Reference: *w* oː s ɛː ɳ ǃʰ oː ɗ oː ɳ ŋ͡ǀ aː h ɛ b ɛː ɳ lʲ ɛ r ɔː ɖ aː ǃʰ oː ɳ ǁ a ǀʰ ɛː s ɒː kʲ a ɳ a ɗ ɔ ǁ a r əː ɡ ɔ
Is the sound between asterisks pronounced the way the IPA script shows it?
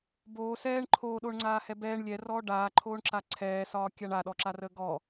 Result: no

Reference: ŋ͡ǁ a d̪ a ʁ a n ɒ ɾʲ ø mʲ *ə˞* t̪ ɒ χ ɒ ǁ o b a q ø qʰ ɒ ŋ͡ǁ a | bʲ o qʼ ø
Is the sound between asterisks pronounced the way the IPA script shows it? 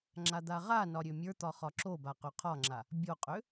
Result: yes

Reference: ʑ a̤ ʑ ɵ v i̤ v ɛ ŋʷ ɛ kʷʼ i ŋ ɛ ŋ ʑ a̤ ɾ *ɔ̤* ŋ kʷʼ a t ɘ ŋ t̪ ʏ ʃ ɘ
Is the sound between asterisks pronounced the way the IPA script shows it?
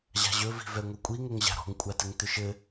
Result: yes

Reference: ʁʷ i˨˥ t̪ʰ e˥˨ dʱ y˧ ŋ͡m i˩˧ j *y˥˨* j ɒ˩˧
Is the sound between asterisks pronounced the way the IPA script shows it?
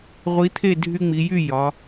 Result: yes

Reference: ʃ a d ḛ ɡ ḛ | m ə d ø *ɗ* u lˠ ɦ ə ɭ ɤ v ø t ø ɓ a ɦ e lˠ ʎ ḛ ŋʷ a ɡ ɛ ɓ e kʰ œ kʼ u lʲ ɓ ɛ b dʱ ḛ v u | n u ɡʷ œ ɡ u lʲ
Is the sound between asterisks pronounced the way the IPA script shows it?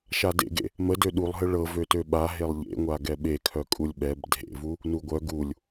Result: yes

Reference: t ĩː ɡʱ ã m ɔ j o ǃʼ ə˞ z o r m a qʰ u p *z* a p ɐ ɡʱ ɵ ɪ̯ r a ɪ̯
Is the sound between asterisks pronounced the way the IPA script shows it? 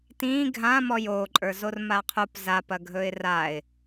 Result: yes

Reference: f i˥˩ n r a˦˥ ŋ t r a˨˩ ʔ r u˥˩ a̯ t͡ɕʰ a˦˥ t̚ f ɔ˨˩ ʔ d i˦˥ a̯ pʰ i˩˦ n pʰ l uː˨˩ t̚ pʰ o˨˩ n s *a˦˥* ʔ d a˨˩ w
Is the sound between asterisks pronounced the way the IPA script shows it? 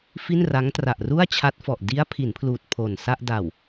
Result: no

